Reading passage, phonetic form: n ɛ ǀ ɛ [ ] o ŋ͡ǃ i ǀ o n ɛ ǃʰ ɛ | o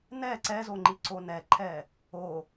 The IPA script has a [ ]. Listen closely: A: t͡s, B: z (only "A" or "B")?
B